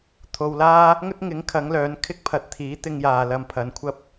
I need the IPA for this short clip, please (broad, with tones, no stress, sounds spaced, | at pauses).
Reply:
t̪ʰ o˨ w l aː˥ | ŋ ɵ˥ t̚ ŋ ɪ˨˥ ŋ kʰ ɐ˨˥ ŋ l œː˨˥ n kʰ ɪ˥ k̚ pʰ ɐ˧ t̚ t̪ʰ iː˨˥ t̪ ɪ˧ ŋ j aː˨ l ɐ˧ m pʰ ɐ˨˧ n kʷʰ ɐ˥ p̚